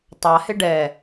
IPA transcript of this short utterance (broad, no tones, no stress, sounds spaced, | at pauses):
tˤ a h ɪ ɖ ɛ